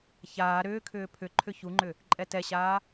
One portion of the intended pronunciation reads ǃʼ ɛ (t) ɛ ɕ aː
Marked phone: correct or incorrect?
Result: correct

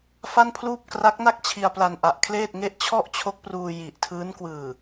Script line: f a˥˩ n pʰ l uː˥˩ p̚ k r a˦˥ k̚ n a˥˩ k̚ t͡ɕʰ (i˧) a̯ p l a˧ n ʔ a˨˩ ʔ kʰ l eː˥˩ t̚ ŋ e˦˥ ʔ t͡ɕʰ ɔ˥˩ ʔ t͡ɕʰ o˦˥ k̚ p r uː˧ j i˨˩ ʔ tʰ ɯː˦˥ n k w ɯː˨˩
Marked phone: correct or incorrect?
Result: correct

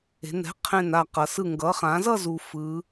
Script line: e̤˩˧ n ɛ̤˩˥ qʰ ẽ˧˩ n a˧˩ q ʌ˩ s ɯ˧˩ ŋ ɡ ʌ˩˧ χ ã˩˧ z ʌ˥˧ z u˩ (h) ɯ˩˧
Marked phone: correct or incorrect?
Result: incorrect: f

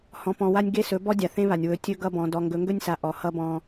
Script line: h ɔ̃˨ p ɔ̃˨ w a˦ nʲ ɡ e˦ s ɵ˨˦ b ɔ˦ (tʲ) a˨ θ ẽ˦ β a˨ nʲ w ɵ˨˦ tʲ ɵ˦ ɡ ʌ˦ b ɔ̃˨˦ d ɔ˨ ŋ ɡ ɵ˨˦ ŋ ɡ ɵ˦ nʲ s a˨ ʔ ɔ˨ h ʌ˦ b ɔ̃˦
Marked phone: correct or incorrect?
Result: incorrect: dʲ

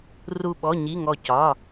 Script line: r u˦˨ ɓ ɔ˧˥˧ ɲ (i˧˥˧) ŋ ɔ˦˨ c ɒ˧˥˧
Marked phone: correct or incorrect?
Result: correct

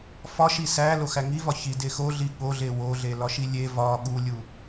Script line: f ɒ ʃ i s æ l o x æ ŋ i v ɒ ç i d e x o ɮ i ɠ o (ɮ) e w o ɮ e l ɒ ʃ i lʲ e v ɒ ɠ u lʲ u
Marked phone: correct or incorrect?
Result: correct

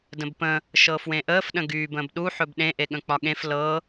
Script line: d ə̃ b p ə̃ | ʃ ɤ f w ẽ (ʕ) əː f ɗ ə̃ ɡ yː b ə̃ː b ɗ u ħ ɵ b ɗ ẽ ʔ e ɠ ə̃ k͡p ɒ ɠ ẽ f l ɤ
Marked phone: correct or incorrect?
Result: incorrect: ʔ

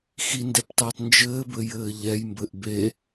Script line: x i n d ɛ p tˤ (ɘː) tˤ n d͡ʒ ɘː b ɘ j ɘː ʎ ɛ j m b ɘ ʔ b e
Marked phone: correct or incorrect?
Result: incorrect: ɛː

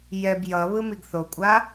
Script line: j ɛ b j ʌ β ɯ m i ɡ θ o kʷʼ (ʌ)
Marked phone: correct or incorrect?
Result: incorrect: a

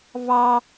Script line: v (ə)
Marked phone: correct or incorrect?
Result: incorrect: ɑ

